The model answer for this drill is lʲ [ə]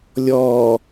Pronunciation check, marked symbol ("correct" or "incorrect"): incorrect